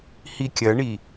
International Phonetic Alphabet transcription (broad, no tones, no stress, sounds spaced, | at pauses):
h i kʲ ɐ ɳ i